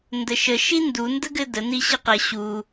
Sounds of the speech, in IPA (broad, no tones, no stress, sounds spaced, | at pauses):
n d ə ʃ ə ʃ i n d u n d ə ɡ ɘ d ə n i ɕ ɘ q ə ɕ u